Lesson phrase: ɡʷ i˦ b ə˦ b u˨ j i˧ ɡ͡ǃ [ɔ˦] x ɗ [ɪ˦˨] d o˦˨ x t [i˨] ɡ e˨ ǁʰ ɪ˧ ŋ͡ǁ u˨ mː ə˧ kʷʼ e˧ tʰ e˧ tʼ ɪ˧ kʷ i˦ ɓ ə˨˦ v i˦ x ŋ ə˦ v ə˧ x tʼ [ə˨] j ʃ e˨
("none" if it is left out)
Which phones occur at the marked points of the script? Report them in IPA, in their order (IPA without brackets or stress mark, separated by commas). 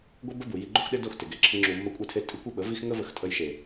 o˦, ɪ˦, ɪ˨, ə˧